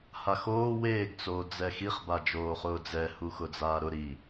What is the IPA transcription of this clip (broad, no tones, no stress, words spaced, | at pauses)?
haxoː weːɡ t͡soːd͡zɛxiχ bad͡ʒoːχʊːd͡zɛ huxʊd͡zaːɾʊ ɾi